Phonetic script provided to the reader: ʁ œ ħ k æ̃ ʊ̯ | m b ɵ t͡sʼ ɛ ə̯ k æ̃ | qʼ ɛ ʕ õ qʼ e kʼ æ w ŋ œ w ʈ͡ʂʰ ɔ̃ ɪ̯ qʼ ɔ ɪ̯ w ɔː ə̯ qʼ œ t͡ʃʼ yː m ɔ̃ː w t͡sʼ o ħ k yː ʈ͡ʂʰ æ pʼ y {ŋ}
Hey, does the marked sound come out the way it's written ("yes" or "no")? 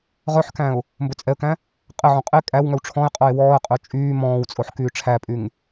yes